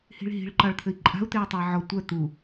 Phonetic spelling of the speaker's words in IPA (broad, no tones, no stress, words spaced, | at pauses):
hi̤ɭɦi̤ɭ ǃɑɭt̪ʰɘi̯ǃʼa̤u̯ t̪eu̯tˤui̯ʕɔ tʷœ t̪u